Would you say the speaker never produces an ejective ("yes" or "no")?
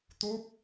yes